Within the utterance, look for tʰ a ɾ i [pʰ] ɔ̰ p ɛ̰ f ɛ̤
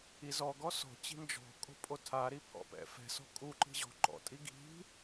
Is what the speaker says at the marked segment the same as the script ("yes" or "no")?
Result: yes